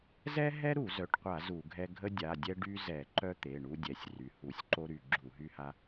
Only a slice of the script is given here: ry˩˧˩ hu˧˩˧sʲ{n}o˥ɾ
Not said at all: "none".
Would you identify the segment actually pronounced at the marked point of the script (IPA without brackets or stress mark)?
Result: ǃ